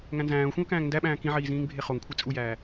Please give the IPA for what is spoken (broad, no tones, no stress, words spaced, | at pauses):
ŋæ̃nzæ̃ːʊ̯xʷĩʊ̯ kæ̃ːŋndæɓæ̃ː kĩʕiː zĩːŋbʱeχoŋkʷʰe t͡sʼujæː